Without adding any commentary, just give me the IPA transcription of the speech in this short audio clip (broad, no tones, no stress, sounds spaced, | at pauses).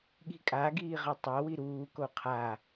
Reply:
ɠ i̤ kʼ a ɡ iː ʁ ʌ tˤ a w i ɾ uː k o qʰ a